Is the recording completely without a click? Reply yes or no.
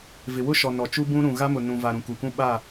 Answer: yes